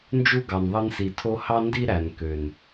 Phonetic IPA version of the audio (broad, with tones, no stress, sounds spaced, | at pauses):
n d͡ʒ u˦ ɡ ɑ˨ n ðˤ ɯ˧ n s i˨ tʰ o˦ h ɑ˦ n d i˦ ɾ æ˨ n k ø˨ n